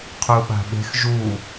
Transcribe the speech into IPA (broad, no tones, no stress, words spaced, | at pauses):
qʰuɓa̤ɓe̤x ʒu